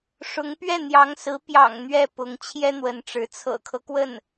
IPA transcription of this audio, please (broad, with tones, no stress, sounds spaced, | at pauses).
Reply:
ʂ ʊ˧˥ ŋ p ɥ ɛ˥˩ n̪ j ɑ˧˥ ŋ s ɹ̩˧˥ p j ɑ̰˨˩ ŋ n̪ ɥ ɛ˥˩ p ʊ˧˥ ŋ t͡ɕʰ j ɛ˥ n̪ w ə˧˥ n ʈ͡ʂ ɻ̩˧˥ t͡sʰ ɤ̰˨˩ kʰ ɤ˦ k w ə˥˩ n